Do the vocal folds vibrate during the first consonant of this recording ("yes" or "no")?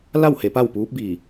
yes